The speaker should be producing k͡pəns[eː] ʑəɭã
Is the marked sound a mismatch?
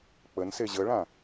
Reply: yes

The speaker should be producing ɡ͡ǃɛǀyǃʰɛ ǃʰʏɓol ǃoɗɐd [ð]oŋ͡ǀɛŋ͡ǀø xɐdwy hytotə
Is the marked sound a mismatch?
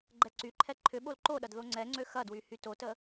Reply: no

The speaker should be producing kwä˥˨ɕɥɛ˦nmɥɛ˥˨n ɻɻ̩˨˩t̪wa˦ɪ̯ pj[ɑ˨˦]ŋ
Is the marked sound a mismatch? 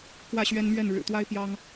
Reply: yes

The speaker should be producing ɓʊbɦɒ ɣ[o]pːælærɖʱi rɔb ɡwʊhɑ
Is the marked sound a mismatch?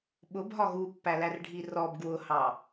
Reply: yes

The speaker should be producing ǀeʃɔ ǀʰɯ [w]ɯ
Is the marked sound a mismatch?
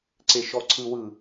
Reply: no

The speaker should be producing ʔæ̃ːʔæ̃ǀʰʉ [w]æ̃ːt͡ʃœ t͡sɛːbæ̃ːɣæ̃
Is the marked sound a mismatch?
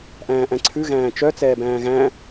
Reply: yes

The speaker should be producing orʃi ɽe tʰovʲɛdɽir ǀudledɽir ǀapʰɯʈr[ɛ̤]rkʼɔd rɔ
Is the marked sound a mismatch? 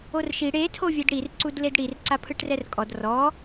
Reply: yes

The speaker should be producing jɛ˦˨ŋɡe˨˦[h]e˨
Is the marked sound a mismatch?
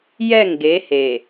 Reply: no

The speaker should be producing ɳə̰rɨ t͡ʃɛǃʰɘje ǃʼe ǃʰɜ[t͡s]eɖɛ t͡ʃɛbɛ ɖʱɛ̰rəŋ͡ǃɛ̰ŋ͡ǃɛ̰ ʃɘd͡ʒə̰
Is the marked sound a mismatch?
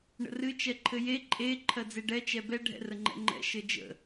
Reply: yes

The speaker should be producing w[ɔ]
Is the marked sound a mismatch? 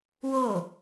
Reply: yes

